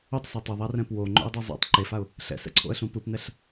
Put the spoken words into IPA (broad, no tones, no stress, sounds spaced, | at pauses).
o tˤ s ʌ tˤ ɛ ðˤ a r ɛ̃ p w o ŋ͡ǃ o̰ ə̯ dˤ o zˤ ɛ̰ tˤ ǃ e f a ʊ̯ | ɬ ɛ̰ s ɛ̰ ǀʰ o̰ ə̯ ɬ ũ p ɯ p n ɛ ɬ